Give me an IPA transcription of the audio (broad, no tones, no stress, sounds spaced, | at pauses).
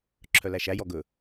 ǁʰ œ l æ ʃ æ j ɔ ɡ ɵ